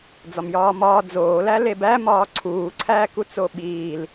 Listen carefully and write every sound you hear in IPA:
d͡zɒmjɒːmɒː d͡zoːlæ lebæ mɒːǀʰuːǀʰæːku t͡soɓiːl

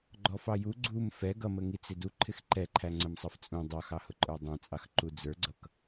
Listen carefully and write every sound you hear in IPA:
ɡ͡ǃɔfɑju ɡ͡ǀum fɛ ɡʌmə ŋit͡sɪduǃʰɪx ǃɛǃʰæ ŋ͡ǀəmsˤʌft͡sʼũ dˤɑxɑhʊǃʼə˞ dˤɛ̃t͡sʼɑx ǃud͡zə˞ɡ͡ǀʌk

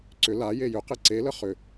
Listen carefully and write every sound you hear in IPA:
ǀʏ la jejʏ qeǀelə χʏ

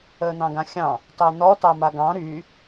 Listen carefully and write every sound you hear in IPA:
əːn̪ɑ̃ɡãxʲɑ̃ | tɑn̪ɔ tɑmaɡɑ̃ ɾy

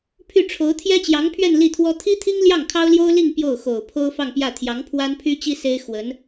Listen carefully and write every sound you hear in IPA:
pʰy˥˩ʈ͡ʂʰo˧˥ʊ̯ t̪ʰjɛ˥t͡ɕjɑ˧˥ŋpʰɥɛ˥˧n li˥˩t̪ʰwɔ˥ t̪ʰi˥t̪ʰi˥ŋ ljɑ˥˩ŋkʰɑ˥ʊ̯ljo˥ʊ̯ li˥˧ŋ pjo˥˩ʊ̯xo˨˩ʊ̯pʰo˥ʊ̯ fɑ˥˧ŋpjä˥˩ t̪ʰjɑ˧˥ŋpʰwa˥npʰy˥t͡ɕi˥ se˥ɪ̯xwə˧˥n

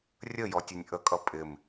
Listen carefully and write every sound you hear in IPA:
rʲəjɔtʲʌnʲ ʔəkʼʌ pʼɪm

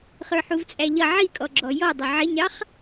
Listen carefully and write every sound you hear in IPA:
χə˞ħuvt͡sʼæʎʌ ʕikʼɔɡ͡ǁɔ jɔdˤʊ ʕɪɲɑχ

